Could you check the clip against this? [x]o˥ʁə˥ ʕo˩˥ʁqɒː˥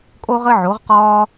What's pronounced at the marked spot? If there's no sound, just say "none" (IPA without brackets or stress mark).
kʼ